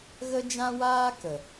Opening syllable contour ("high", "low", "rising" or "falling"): high